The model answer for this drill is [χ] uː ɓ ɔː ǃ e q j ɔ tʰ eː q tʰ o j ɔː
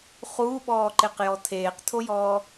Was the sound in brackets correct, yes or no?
yes